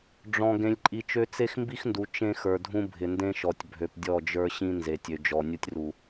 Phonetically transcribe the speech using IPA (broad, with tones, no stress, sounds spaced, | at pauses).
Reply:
ɖ͡ʐ ɔ̃˨ ɡ ẽ˨ lʲ ǃʼ i˨ t͡ʃ ø˦ t͡s e˦ x m b i˦ x n d u˨ t͡ʃ ẽ˦ x ə˞˨ dʱ ũ˦ bʱ ɪ˨ n d ẽ˦ ʃ ɔ˨ tʲ bʱ ø˨ p dʲ ɔ˦˨ d͡ʒ ə˞˦ ɕ ĩ˦ n z e˨ tʲ ø˨ d͡ʒ ɔ˨ nʲ u˦ tʲ r u˨